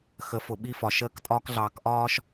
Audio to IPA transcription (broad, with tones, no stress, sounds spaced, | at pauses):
x ə˨ f ʊ˨ ɓ i˦ f ɒ˨ ʃ əː˦ k tʼ ɒː˦ k ɮ ɑː˨ k ʔ ɒː˦ ʃ